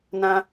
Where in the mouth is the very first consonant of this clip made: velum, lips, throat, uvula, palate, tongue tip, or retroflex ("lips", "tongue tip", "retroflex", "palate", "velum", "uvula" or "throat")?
tongue tip